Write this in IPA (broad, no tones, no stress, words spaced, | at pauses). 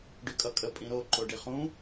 ɖykʼʌkʼə pʼĩɾo ǃoɖiχũ